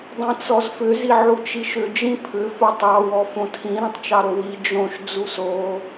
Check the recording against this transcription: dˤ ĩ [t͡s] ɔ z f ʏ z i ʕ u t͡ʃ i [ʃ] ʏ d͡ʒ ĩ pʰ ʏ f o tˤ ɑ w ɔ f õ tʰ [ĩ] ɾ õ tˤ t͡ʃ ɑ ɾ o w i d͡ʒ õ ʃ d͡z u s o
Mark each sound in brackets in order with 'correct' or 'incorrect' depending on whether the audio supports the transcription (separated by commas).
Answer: correct, correct, correct